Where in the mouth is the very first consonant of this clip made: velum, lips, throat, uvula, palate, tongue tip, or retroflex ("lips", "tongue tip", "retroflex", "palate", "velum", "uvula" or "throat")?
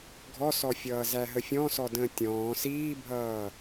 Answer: velum